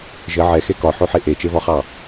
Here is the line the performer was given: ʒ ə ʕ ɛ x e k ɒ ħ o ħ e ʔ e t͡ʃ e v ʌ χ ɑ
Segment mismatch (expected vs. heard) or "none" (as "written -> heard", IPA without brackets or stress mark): ʌ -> ɒ